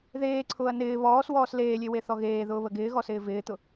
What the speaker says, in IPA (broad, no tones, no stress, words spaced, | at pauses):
ðeːǀʰʊːɐ̯ nɪː βɔːswɔːs leːlʲeweθɔ ɣeːðʊːβə ɡɪːɣɔsɪː vɪːt̪ʊ